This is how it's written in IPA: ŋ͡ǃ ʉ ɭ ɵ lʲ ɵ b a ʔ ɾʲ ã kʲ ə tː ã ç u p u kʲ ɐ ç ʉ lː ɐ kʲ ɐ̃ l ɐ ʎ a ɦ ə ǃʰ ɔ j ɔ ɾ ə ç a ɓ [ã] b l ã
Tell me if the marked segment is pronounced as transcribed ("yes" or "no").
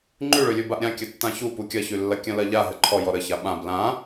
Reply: yes